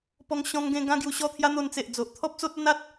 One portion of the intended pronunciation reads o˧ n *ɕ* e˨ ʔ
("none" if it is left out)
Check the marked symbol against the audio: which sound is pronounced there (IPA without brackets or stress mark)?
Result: t͡s